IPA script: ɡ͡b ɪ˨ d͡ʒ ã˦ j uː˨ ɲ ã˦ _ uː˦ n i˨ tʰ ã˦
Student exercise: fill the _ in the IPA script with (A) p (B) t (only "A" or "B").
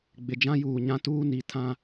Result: B